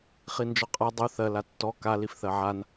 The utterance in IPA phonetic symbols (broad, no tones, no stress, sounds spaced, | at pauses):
χ i n d͡ʒ ɔ qʼ a dˤ u θ ɜ l a tː ɔ k a l i f θ ɜ ʕ a n